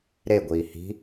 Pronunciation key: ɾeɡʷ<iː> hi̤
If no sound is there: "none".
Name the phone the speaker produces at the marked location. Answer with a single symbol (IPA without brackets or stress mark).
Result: iː